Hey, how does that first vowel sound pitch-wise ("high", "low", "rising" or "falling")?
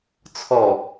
low